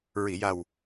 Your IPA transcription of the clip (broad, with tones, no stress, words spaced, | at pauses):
ɹi˨˩˨ja˨˩w